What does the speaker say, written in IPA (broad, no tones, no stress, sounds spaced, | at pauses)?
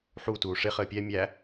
ħ u t uː ʂ ɪ χ əː pʲ ɛ mʲ æ